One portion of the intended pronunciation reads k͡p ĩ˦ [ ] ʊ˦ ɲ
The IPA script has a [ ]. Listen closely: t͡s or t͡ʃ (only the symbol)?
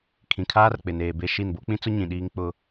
t͡s